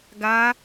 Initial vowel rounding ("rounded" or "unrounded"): unrounded